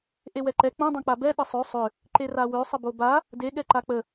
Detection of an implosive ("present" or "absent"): present